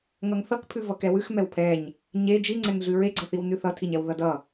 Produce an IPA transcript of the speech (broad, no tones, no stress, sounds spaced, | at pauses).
ŋ ʌ ŋ θ ʌ k pʰ ʉ v ʌ k ɛ w ʉ x m ɛ w pʰ ɛ ɲ | ɲ e d͡ʒ i ŋ͡ǀ ɛ ŋ ɮ ʉ ɹ e ɡ͡ǀ ʌ θ i w n ʉ θ ʌ tʰ i ɲ ɛ w ð ʌ d ʌ